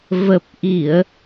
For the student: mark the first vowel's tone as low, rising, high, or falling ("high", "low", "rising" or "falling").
low